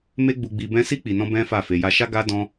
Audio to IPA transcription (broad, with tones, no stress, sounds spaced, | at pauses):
m e˦ ɡ͡b u˧ ɡ͡b i˧ b ɛ̃˦ s i˦ k͡p i˧ n ɔ̃˦ b ɛ̃˦ f a˦˨ f e˧ j a˦ ʃ a˦ ɡ a˦ d ɔ̃˦